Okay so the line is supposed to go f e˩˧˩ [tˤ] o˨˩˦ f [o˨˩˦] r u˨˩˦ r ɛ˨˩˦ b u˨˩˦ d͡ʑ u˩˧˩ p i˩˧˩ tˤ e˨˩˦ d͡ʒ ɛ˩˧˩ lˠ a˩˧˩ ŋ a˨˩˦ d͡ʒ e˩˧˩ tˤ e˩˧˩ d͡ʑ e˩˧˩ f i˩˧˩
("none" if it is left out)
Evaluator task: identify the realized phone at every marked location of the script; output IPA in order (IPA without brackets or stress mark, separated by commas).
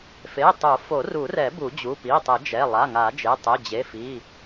tˤ, o˨˩˦